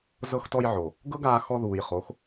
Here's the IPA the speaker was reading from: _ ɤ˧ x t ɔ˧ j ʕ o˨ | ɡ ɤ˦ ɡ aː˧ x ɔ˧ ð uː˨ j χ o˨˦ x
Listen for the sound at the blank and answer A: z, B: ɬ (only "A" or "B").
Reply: A